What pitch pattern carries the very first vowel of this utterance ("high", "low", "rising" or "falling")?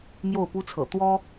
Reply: falling